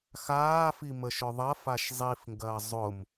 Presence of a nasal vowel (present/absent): absent